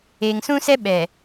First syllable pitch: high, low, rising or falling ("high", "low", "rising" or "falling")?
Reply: low